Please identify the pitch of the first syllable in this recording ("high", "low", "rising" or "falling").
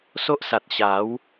high